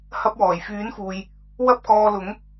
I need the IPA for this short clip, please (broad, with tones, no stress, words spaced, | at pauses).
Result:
hɐ˧p̚wɔː˨˩j fyː˨˥nfuː˨j | wɐ˥p̚kɔː˧lʊ˨˥ŋ